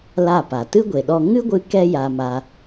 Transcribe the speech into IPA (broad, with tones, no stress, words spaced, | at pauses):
la˦˨pa˨ tɨ˦ɡʷe˨ɗɔ˧ ŋɨ˦ɡʷɨ˧ kɛ˦ja˧ma˧